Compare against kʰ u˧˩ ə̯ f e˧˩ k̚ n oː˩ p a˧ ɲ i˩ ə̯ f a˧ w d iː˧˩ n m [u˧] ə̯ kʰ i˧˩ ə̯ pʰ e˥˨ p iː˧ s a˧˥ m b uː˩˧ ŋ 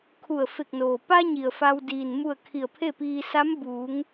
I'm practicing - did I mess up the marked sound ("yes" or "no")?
yes